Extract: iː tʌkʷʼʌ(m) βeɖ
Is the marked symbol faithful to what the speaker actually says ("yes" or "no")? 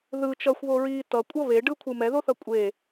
no